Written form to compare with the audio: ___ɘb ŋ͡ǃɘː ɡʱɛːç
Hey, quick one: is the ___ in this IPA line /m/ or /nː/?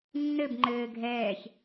nː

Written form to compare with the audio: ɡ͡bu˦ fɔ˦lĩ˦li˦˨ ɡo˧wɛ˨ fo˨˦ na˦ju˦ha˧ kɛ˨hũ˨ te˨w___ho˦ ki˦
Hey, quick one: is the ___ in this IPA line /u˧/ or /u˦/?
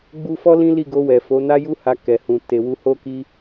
u˧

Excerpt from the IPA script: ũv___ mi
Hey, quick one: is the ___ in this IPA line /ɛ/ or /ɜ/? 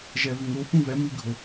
ɛ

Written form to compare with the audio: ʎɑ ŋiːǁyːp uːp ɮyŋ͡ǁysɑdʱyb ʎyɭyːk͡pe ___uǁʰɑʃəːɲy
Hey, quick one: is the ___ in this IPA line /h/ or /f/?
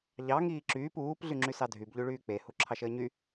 h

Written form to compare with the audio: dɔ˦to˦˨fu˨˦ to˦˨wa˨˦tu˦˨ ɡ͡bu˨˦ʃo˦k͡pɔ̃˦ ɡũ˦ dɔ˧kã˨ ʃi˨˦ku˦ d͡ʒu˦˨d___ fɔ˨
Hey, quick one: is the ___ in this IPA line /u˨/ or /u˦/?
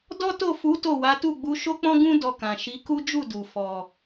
u˨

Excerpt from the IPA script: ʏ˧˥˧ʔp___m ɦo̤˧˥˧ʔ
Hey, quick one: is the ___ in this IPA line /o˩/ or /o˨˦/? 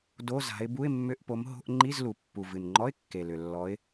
o˨˦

